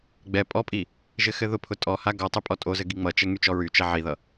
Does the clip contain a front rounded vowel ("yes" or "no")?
yes